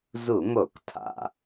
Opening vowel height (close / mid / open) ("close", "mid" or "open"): close